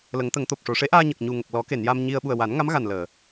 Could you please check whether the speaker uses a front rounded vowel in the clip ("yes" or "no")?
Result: no